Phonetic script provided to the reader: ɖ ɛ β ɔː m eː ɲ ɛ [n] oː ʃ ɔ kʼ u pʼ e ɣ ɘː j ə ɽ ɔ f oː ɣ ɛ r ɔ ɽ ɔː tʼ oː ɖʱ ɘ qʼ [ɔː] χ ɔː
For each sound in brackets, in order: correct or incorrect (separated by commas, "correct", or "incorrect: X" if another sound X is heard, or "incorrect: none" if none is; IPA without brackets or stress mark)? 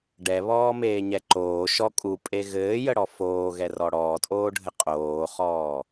incorrect: ǃ, incorrect: oː